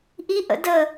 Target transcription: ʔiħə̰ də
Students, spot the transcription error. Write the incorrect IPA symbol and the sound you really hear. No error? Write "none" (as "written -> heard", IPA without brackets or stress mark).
ħ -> ʔ